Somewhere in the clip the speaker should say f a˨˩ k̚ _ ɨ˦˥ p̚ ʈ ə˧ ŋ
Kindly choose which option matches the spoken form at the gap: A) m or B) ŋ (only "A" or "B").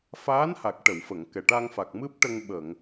A